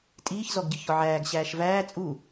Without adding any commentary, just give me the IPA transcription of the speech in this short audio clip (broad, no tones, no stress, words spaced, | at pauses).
tʼiːçzɔɡ ɟɨçɔʕæːɡ ɕæːʃvæː t͡sʼu